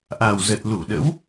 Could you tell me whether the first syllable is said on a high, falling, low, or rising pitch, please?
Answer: low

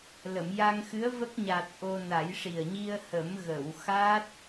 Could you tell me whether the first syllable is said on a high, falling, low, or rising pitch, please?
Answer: low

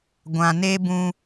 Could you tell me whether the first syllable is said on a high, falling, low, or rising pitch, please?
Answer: low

